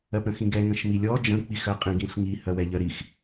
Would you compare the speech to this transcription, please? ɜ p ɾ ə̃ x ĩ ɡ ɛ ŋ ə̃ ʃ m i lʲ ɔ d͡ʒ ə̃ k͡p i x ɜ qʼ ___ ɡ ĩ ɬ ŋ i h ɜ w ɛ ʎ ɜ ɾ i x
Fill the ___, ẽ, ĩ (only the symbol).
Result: ĩ